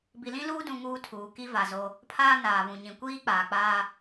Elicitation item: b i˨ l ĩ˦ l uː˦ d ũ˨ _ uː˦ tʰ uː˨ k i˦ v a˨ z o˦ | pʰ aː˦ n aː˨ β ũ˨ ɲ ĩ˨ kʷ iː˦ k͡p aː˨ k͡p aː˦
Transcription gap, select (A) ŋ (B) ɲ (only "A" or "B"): A